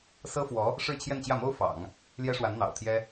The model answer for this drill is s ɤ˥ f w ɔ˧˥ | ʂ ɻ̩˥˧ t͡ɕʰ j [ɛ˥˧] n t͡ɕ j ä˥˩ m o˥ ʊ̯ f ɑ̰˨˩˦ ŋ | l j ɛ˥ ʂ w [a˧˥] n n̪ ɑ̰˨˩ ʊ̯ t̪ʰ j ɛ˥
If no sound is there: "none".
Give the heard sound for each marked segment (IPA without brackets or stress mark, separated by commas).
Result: ɛ˥˧, a˧˥